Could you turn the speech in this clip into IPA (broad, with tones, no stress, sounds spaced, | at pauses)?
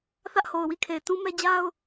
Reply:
θ ä˦ ʔ h o˨ ʊ̯ w i˦˨ kʰ e˨ ɪ̯ t ũ˦ m ɛ˦ d͡ʑ a˦ ʊ̯